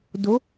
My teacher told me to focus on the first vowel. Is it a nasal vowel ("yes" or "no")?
no